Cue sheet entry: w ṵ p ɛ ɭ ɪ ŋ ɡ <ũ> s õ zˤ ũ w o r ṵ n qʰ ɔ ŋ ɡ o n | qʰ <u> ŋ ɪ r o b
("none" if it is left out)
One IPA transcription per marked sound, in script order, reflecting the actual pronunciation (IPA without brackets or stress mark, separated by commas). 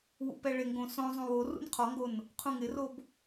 õ, ũ